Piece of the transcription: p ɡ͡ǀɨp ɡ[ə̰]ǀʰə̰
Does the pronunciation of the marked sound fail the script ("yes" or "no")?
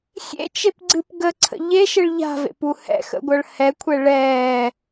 yes